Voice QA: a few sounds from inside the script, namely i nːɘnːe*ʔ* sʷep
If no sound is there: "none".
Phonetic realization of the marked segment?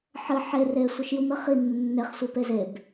χ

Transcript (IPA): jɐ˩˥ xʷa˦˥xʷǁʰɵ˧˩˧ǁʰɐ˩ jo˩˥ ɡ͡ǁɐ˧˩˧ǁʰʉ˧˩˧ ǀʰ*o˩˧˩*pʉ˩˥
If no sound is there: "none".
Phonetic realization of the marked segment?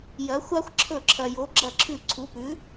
u˩˧˩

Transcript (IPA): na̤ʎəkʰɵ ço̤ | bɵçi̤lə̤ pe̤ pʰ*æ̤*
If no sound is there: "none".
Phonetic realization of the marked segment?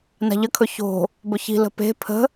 ə̤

